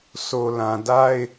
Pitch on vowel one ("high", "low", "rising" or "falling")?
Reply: low